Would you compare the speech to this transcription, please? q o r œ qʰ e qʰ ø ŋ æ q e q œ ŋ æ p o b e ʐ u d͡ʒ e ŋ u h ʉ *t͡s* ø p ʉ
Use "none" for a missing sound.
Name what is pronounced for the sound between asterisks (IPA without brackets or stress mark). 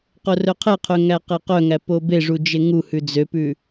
d͡z